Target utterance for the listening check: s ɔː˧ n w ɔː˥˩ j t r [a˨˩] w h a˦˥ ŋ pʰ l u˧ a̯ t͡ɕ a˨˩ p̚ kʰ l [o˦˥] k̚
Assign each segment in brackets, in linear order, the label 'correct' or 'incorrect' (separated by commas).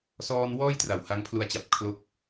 correct, correct